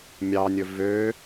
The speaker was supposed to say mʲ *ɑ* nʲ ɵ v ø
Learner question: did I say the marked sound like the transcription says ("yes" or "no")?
yes